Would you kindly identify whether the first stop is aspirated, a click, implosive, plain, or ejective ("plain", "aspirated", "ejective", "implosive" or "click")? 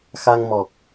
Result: plain